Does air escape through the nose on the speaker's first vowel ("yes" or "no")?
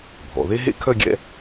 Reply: no